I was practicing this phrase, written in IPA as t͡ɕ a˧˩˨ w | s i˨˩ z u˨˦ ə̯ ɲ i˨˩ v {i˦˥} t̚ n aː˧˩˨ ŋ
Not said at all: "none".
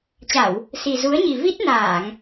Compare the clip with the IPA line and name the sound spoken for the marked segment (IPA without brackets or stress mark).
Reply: i˦˥